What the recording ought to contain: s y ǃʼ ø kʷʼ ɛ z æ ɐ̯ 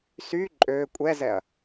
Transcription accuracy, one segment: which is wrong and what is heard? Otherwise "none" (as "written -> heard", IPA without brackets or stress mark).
æ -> ɛ